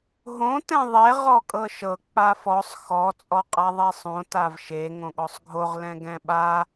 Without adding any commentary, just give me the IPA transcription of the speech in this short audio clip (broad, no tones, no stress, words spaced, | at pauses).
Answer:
ɦõ tɛ̃ðˤe ʁɔkʼɤʃɤ k͡pafɔsˤ xɔ t͡sʼɔqʼaðˤɛsˤõ tavʃe ŋõɠɔsˤɡʱoʁ lɛ̃ɡɛ̃ɓa